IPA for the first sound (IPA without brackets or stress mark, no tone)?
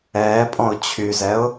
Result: ɛː